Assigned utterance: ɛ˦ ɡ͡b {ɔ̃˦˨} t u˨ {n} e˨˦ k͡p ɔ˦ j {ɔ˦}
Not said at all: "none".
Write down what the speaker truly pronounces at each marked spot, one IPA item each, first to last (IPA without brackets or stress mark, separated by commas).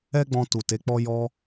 ɔ̃˧, t, ɔ˦